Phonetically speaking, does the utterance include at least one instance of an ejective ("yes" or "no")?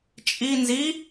yes